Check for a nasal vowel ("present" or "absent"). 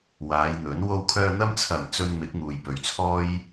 absent